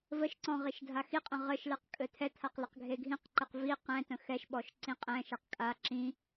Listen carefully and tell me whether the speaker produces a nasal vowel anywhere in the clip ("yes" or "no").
yes